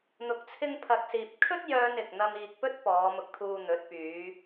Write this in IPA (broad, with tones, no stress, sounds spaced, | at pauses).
n̪ ʊ˨ k̚ t͡sʰ ɪ˧ ŋ pʰ ɐ˨ k̚ s iː˨ p̚ kʰ ɵ˥ t̚ j œː˥ n ɪ˨ k̚ n̪ ɐ˥ m iː˧ k̚ p ɵ˥ t̚ p ɔː˨˧ m ʊ˧ k̚ t̪ʰ uː˧ n̪ ɵ˨˥ t̚ p yː˨˧